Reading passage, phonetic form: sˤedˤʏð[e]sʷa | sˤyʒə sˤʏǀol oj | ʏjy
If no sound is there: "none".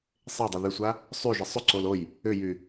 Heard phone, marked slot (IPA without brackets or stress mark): y